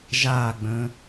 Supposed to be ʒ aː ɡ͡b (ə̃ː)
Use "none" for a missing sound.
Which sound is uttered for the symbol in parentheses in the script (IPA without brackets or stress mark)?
ə̃ː